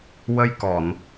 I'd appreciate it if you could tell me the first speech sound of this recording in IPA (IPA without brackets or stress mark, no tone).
w